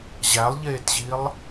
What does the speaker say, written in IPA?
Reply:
ʑ æ lˠ ʎ eː t ʑ i lˠ

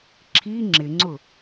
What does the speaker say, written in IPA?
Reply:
ǁʰ i ŋ͡ǁ ɪ ŋ͡ǀ ʊ

